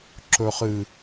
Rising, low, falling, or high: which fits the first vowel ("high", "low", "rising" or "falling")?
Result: low